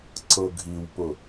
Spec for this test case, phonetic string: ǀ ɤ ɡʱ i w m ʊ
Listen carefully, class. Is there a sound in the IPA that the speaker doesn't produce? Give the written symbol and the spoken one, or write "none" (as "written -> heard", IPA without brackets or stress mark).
m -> p